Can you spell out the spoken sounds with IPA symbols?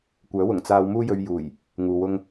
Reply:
kʷœː˨˥wʊ˨˩ŋ t͡saː˧w muː˥jɵ˧ɥjuː˨˩j | ŋuː˨wʊ˥ŋ

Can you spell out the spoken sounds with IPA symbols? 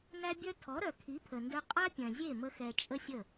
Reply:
næ˦bʲœ˦ tʰɔ˨˦ɾœ˨ kʰi˨˦pʰə˨ndœ˧ qʼa˦pʲœ̃˨zʲe˦˨ mə˦xɛ˧ t͡ʃʼə˦sʲə˦˨

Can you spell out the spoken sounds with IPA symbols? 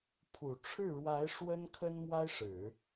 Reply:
pʰu˨˩ ʈ͡ʂʰɻ̩˥˩ɻwa˧˥ɪ̯ ʂwə˥nkʰə˥n mwa˥ɪ̯ʂɻ̩˨˩˦

